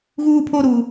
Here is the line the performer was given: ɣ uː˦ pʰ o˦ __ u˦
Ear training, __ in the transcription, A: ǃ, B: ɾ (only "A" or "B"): B